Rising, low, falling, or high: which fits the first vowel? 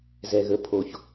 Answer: low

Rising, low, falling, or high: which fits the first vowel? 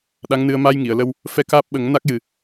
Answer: rising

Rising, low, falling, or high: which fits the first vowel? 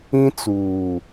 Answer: high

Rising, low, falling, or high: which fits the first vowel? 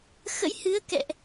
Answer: rising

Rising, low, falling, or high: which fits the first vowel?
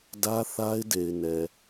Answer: high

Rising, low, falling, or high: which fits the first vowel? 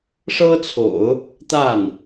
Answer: high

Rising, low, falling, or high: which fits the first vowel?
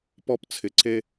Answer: high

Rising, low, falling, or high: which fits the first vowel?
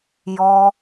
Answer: high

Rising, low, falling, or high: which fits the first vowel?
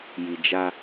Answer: low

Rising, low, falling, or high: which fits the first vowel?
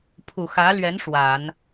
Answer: low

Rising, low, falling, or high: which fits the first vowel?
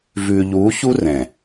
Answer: low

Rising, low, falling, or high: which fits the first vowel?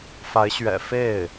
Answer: rising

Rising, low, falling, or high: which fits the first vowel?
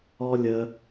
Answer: high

